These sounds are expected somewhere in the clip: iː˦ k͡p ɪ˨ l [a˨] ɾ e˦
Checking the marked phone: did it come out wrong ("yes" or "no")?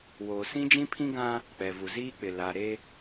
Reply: no